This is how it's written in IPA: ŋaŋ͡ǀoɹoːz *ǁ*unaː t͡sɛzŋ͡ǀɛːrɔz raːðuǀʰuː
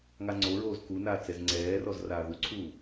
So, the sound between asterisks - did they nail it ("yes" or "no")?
no